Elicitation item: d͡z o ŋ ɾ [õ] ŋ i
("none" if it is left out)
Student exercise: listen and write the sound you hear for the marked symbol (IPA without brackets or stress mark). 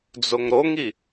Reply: o